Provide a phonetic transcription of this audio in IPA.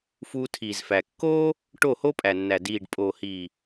f uː˧ tʰ iː˨ z f æ˨ kː oː˦ | ʈ o˦˨ h o˦ pʼ æ˨ nː æ˨ d iː˨ ɖ pʼ oː˨ h iː˨

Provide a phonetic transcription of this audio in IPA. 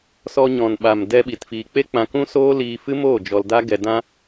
s ɔ˧ ɲ ɔ̃˨ n ɓ a˨ m d ɛ˧ ɓ i˨ t f iː˨ k͡p e˦ k͡p ã˧ k ũ˦ s oː˦ l iː˧ f ɨ˦ m oː˦˨ d͡ʒ ɔ˧ l d a˦ ɡ ɛ˧ d ã˦

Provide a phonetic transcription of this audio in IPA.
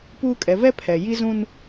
p uː˦ kʼ ɛ˨˦ v ɛ˦ pʰ ɛ˨ j i˦ z ũ˦ n

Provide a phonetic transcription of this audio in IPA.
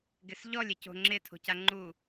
ɡ ɪ s ʎ ɔ lʲ e c o̤ ŋ͡ǁ ɪ tʰ o̤ c a ŋ͡ǃ u

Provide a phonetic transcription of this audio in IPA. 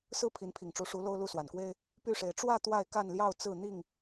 s ɹ̩˦ pʰ i˨˦ n pʰ i˨˩ ŋ ʈ͡ʂ u˨˦ ʂ u˨˦ l o˦ ʊ̯ l u˥˨ s w a˨˩ n k w e˦ ɪ̯ | p y˥˨ ʂ e˨˦ ɪ̯ ʈ͡ʂ w ä˥˨ t̪ w a˥˨ ɪ̯ k a˥˨ n l j ɑ˥˨ ʊ̯ t͡s ɹ̩˥˨ n̪ i˥˨ ŋ

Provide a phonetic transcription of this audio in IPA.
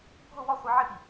bʱ ʊ w ɔ χʷ i ʕ ɪ p i

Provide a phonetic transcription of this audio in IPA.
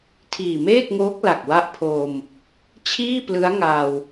tʰ iː˨˩ m eː˥˩ k̚ ŋ oː˦˥ k̚ l a˨˩ k̚ w a˦˥ ʔ pʰ oː˧ m | t͡ɕʰ iː˥˩ p l ɯ˦˥ a̯ ŋ aː˧ w

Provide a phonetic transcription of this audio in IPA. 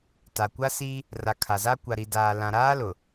t a˨ kʷ a˦ s i˦ | r a˨ kʰ a˨ z a˦ kʷ a˨ ɾ i˨ d aː˨ l ã˨ ɾ aː˦ l ʊ˨

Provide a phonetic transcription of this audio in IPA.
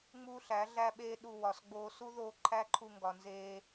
ŋ͡m uː˦ ɬ æ˨˦ ɮ æ˦ ɓ eː˦ ɗ u˧ w ɒ˨ s ɡ͡b oː˧ s u˦ ð oː˧ ǃʰ æ˦ ǃʰ u˧ ŋ ɡ ɒ˨ n z eː˧

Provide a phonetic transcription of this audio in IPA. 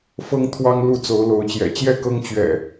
f ɤ˦ ŋ t̪ʰ w ɑ˦ ŋ l u˥˨ t͡s o˨˦ ʊ̯ l o˨˦ ʊ̯ t͡ɕ j ɛ̰˨˩ t͡ɕ j ɛ˥˨ k ɤ˦ ŋ t͡ɕ ɥ ɛ̰˨˩

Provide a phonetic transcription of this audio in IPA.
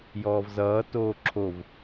j ɔː v z ʌː t oː ǁʰ o v

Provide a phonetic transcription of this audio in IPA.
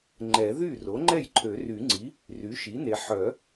ŋ͡ǃ ɛ˨˩˦ ð y˥˩ r o˩˥ ŋ͡ǃ ɛ˥˩ j ǃʰ ø˨˩˦ r y˨˩˦ ŋ͡ǀ i˩˥ | r y˩˥ ʃ i˩˥ n e˨ ħ œ˨˩˦

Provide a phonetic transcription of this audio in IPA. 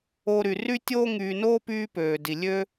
o˨ ɾ y˩ r y˥ tʲ oː˥ ŋ yː˨ n oː˥ p yː˦ p øː˩ d i˩ lʲ ø˥

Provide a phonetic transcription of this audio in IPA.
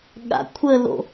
ɠ a̰ kʷʰ ə l o̰

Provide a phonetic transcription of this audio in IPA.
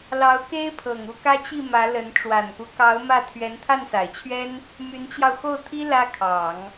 l ɑ˧˥ ʊ̯ k e˥ ɪ̯ pʰ ɤ˨˩ ŋ u˥˩ k ä˥ t͡ɕ i˥˩ m ä˧˥ l ə˧˥ n ʈ͡ʂ w a˨˩ n k u˦ k ɑ˧˥ ʊ̯ m ä˥˩ t̪ʰ ɥ ɛ˧˥ n t̪ʰ a˥˩ n s a˨˩ ɪ̯ t͡ɕʰ ɥ ɛ˥ n | m y˧˥ n t͡ɕ j ɑ˧ ʊ̯ x o˥˩ ʊ̯ t̪ʰ i˥ l ä˥ kʰ ɑ˨˩˦ ŋ

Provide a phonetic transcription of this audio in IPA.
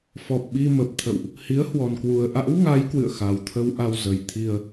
f ɔ˨˩ p̚ ɓ i˧ m ə˨˩ p̚ t̪ʰ ə̰˧˨ w ʔ | h i˨˦ ə̯ h w ɔ˨˩ n k w u˨˩ ə̯ ʔ a̰˧˥ w ŋ a˨˦ j k w ɨ̰˧˨ ə̯ x a˨˩ w t̪ʰ ə˧ w ʔ a˧ w z ə˨˩ j t̪ʰ i˧ ə̯

